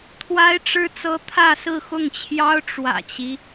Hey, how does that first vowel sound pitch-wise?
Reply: high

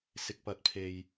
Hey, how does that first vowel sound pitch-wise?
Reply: low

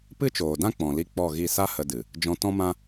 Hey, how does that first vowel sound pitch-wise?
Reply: high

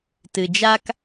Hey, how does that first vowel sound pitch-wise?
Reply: low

